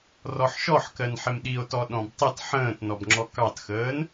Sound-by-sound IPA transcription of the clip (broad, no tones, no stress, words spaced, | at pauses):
rɔħʃɔħkɜn ħɪmɗio̯tɔ ɗɔ̃btˤit ħə̃ːtnɔbŋ͡ǁɔ kɑtxəːn